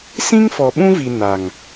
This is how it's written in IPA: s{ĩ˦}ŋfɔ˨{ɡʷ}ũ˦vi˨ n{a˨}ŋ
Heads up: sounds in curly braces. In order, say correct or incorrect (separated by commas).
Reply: correct, incorrect, correct